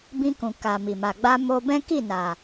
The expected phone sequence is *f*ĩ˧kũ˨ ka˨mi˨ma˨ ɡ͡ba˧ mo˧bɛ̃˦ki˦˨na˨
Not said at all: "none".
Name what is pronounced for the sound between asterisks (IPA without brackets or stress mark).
b